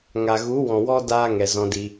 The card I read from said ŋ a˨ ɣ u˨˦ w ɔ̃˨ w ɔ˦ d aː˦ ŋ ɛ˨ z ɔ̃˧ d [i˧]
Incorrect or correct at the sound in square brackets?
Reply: correct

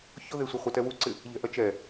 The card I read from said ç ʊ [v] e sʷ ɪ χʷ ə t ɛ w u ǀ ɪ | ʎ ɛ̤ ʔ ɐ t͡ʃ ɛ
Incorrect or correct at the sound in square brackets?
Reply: incorrect: ð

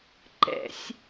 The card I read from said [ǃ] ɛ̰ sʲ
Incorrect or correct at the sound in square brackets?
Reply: correct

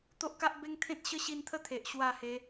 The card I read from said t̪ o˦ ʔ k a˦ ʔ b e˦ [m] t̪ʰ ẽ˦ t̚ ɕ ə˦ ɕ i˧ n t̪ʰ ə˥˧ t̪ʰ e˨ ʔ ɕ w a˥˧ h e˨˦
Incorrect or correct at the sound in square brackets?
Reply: incorrect: ŋ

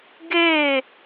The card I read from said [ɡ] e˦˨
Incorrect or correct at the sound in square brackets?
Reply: correct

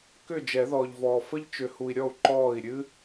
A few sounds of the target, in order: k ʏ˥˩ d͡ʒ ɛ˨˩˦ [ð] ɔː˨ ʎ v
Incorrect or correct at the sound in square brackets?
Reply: correct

